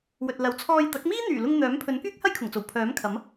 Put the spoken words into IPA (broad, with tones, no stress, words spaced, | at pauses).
wɵ˨t̚lɐ˨˥w t͡sʰɔː˧jt̪ɐ˨˥k̚ miː˥n̪yː˨˩lʊ˧ŋ n̪œː˨˥mpʰɵ˨˥n kyː˥k̚hɐ˥jkʰʊ˨˩ŋt͡so˨˩w pʰœː˨˥mkʰɐ˨˥m